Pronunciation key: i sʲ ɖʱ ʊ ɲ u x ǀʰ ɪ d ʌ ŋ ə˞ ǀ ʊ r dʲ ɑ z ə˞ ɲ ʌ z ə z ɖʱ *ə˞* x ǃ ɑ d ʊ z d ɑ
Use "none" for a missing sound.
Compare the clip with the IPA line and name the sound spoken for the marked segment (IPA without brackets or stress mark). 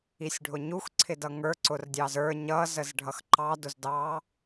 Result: ʌ